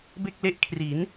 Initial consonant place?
labial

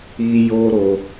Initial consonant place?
palatal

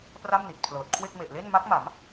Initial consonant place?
labial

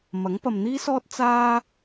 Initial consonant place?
labial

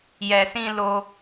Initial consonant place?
palatal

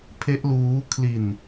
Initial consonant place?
labial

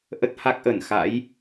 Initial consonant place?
glottal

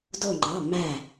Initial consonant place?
alveolar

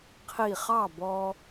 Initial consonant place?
uvular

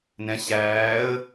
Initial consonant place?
alveolar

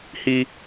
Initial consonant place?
glottal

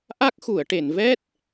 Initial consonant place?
glottal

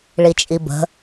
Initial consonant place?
retroflex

